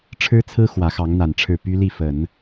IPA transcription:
ʈ͡ʂʰɻ̩˥t͡sʰɹ̩˥ xwä˧˥xɑ˧˥ŋn̪a˨˩nʈ͡ʂʰɻ̩˥˩ py˥li˥˩fə˨˩˦n

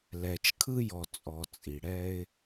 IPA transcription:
lɛ˨t͡ʃkʰɯ˦jɔ˨ t͡sʼɔ˨t͡sʼi˨ ɽɛ˦ɪ̯

